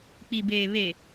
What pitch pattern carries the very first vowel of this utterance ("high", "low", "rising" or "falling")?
low